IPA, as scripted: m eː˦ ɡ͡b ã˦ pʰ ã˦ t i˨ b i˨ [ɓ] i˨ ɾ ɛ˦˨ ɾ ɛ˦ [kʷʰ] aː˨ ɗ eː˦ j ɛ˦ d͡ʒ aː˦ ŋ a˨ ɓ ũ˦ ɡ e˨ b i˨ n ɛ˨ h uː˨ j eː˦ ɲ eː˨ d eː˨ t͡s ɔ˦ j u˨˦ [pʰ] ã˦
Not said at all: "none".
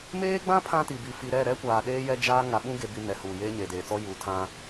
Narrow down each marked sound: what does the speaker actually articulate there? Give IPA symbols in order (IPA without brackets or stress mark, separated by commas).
f, kʷ, tʰ